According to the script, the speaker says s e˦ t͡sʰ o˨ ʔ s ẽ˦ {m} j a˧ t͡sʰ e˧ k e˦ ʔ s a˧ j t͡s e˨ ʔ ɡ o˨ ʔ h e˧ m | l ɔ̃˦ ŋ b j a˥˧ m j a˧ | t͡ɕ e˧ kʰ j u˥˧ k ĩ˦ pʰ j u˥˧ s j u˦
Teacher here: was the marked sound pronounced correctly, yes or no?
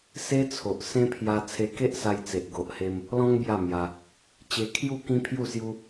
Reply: no